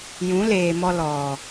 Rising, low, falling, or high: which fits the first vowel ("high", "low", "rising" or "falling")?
rising